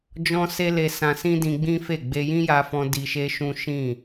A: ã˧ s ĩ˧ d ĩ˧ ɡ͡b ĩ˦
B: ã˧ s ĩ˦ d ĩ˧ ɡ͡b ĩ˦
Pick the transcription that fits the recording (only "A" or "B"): B